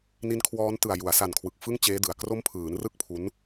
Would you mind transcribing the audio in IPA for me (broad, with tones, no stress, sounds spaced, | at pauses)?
n i˦˥ n kʰ w ɔː˦˥ n t ɯ˨˩ a̯ j u˩˦ a̯ s a˨˩ n kʰ w ɯ˨˩ k̚ f ɯ˥˩ ŋ t͡ɕ eː˦˥ d ɯ˨˩ a̯ k r o˦˥ m pʰ ɯː˩˦ n r ɯ˥˩ k̚ pʰ u˦˥ n